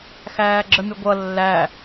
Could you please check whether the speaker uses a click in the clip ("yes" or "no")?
yes